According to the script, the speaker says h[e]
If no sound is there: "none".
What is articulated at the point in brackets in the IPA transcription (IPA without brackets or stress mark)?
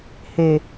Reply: e